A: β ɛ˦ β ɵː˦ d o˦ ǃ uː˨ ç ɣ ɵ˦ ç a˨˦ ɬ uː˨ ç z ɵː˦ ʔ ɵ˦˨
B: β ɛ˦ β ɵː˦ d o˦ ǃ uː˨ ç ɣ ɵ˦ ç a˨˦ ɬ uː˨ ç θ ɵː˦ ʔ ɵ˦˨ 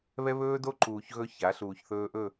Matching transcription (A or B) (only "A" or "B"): B